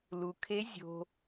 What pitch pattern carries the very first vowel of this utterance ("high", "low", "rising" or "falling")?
low